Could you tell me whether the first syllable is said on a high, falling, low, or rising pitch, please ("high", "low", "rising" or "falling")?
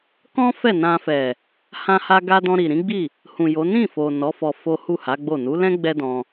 high